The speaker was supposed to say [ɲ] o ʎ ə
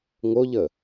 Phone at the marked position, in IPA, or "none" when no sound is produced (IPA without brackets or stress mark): ŋ